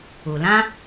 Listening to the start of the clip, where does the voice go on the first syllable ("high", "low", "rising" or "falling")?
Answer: low